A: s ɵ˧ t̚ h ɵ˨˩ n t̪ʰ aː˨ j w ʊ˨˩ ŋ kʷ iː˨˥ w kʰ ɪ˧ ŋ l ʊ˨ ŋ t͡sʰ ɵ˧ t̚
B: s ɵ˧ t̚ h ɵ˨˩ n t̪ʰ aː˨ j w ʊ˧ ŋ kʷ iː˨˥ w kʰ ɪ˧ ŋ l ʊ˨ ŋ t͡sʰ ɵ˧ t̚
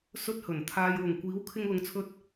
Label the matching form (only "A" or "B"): A